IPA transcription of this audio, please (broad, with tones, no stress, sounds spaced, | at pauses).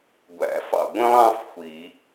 ɡʷ æ̰˨˩˦ f ɑ̰˧˩ ɡʷ ĩ˥ lˠ ɑ̃˥ f xʷ i˨˩˦